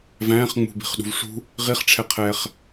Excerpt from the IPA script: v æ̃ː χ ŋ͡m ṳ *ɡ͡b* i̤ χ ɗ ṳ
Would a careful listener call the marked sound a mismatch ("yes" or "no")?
yes